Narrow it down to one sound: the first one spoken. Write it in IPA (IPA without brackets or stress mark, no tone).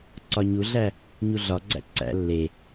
ǀ